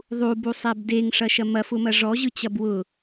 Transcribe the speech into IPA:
ðˤ u b u sˤ ɛ b d e ŋ ʂ ɐ ʃ ɐ m ɐ f ʊ m ɐ ʐ ɔ ʑ ɯ t͡ɕ ɐ b w ʊ

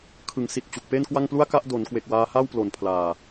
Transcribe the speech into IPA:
kʰ ɯ˩˦ ŋ s i˨˩ t̚ t͡ɕ u˨˩ k̚ p e˥˩ n k w a˥˩ ŋ p l u˥˩ a̯ k a˥˩ ʔ d o˩˦ n k w e˨˩ k̚ w aː˧ h a˥˩ w p l o˨˩ n pʰ l aː˨˩

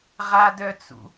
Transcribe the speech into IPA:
ʁ a d œ t͡s ṵ

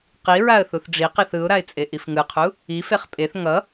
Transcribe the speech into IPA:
q i ɹ a ə̯ θ u θ ɖ͡ʐ i q i θ ɯ ʊ̯ ɾ a ɪ̯ t͡sʼ e ʔ i f ŋ ɯ qʰ u | i f e χ pʼ e θ ŋ ʌ

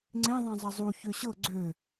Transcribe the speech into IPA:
ŋ͡ǀ ẽ ðˤ ɛ̃ zˤ ɐ zˤ u ç ø ɕ ɤ ɡ͡ǀ ø

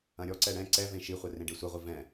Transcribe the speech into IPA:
ɐ̃ ɾʲ ɔ ǀ ɛ ɽ ɛ̃ ǀ ɛ v ẽ ʃ i χʷ ɛ r ẽ ɖ e sʷ ɛ ʁʷ i v ɛ̃

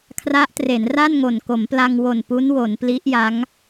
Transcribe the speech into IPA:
kʰ r a˦˥ ʔ t r e˩˦ n r a˥˩ n ŋ o˨˩ n k o˩˦ m p l a˧ ŋ w o˨˩ n p u˦˥ n w o˩˦ n p l i˦˥ ʔ j a˦˥ ŋ

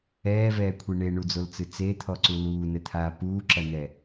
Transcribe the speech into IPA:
ɛː v ɛː kʷʰ i ɳ e ɳ u d͡z o l t͡s ɨ t͡s e t̪ʰ ɔ ǀ u l uː n ɘ t̪ʰ aː p uː ǁ ɐ n̪ ɛ

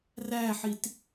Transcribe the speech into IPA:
r æ ħ i t

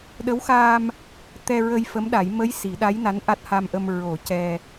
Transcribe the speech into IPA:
ɗ ə˧˥ w x aː˧ m | t̪ ɛ˧ ɹ ə˧ j f ə˧˥ m ɗ a˨˩˦ j m ə˧˥ j s i˨˩˦ ɗ a˧˥ j n a˧˥ n ʔ a˦˥ t̚ h a˧ m ʔ ə˧ m ɹ o˨˩˦ c ɛ˧

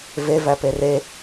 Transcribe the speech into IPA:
v e v æ p e r e

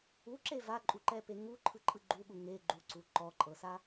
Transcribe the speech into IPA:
u ǁ e v a ǃʼ u ǃ ɛ p e ŋ u ǃʰ ɯ ǃʼ ɯ ɡ͡ǃ u ɠ u ŋ e ɡ͡ǃ u ǀ u ǃ ɔ ǃʼ ɤ s a

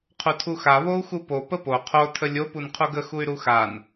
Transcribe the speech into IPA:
qʰ u tʰ u x a β o u̯ x u p o p ə p o qʰ o tʰ ə lʲ o p u n qʰ u ɡ ə x u y̯ ɾ u x a n

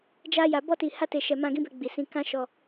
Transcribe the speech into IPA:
d͡ʒ a˧ j a˨ b ɔ˧ t i˨ h a˧ t e˨ ʃ ɛ˨ m ã˧ ɡ ĩ˦ b ɛ˧ ɡ͡b i˨ s ĩ˧ k ã˦ ʃ ɔ˧

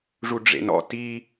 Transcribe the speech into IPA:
ʐ u ɖ͡ʐ ḛ n ɔ̰ t i

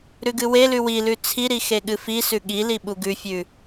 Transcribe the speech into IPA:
ɾ ʉ ɡ ɨ w e l ʉ w i l ʉ t͡sʰ i ɾ i x e ɠ ɨ f i s ʉ ɠ i l i ɓ u ɡ ʉ fʲ ʉ

